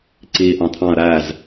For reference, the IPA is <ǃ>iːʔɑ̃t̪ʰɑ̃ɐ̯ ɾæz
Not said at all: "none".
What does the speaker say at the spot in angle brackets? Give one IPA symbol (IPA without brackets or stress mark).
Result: ǀ